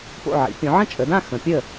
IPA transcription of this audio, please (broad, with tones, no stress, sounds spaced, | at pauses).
p o̰˥˨ ʕ ḭ˨˦ pʲ õ˨˦ ʕ ə̃˥˨ t͡ʃʼ ə˨˦ d ã˥˨ x ə̃˨˦ pʲ ə˥˨